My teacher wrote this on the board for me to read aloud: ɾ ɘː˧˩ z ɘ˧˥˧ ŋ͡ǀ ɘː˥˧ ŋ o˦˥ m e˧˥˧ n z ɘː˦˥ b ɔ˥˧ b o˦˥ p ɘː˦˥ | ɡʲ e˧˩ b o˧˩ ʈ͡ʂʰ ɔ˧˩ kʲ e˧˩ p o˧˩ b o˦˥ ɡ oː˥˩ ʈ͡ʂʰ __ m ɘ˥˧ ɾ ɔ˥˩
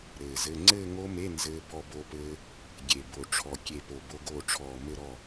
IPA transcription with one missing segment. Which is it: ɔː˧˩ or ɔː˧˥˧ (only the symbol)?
ɔː˧˩